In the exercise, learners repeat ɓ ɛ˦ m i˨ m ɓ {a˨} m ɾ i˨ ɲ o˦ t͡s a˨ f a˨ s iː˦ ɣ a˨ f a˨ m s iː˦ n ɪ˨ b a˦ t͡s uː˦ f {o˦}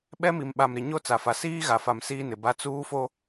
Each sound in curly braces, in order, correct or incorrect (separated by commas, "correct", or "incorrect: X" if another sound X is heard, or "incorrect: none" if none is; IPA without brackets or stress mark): correct, correct